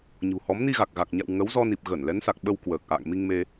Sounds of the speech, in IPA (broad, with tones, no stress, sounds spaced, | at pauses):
ɲ ṳ˨˩ h ɔ˨˦ m n i˧ ɣ a˨˩ k̚ ɣ a˨˩ k̚ ɲ a̰˧˨ w ŋ ə˨˦ w z ɔ˧ n i˨˩ p̚ ɣ ə˧˩ n l ɛ˨˦ n s a˨˩ k̚ ɓ ə˧ w k w əː˨˩ k̚ ʔ a̰ː˧˨ ŋ m i˧ ŋ m e˧